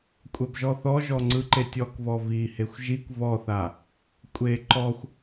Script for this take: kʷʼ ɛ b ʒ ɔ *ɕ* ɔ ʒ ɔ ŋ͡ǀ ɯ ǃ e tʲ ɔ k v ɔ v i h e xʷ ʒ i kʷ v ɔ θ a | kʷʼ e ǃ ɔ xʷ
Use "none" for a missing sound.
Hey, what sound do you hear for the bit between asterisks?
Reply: θ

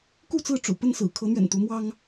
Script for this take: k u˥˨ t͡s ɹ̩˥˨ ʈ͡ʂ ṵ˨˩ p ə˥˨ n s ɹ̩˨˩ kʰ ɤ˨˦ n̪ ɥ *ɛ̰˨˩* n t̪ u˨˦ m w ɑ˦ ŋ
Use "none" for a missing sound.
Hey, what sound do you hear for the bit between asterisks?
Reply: ɛ̰˨˩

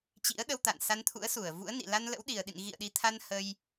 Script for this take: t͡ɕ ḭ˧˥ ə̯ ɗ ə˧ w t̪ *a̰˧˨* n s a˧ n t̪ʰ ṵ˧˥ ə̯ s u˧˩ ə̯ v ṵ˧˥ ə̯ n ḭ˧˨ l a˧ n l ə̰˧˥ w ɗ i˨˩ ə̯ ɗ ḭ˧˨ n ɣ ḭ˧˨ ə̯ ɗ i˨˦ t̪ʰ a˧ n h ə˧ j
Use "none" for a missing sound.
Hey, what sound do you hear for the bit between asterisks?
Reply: a̰˧˨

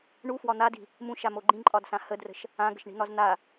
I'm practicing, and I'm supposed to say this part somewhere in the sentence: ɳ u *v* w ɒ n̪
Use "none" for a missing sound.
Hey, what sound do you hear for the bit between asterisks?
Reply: f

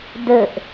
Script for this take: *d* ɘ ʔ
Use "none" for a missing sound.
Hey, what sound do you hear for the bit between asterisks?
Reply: d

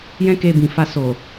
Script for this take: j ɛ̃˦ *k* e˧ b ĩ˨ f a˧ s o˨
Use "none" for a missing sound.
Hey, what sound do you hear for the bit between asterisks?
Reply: k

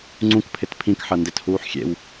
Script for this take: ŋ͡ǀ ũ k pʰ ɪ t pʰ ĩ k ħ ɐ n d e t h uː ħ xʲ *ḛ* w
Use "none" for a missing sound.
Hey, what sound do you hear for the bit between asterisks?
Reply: ḛ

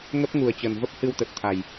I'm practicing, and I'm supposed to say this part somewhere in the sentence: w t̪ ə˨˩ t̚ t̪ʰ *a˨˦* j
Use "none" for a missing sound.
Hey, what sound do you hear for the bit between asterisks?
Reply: a˨˩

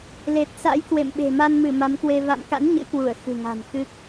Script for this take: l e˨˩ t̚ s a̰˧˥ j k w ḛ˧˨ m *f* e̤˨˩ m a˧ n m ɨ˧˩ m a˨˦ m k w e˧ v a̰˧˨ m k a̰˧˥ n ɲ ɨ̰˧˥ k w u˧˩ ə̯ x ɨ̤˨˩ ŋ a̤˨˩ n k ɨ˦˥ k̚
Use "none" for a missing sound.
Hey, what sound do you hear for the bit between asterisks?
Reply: ɓ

